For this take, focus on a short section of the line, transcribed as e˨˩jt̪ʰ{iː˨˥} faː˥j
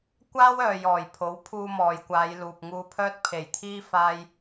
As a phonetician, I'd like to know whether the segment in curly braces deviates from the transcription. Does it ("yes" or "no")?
yes